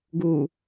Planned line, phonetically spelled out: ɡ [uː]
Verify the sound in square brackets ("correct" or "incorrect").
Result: correct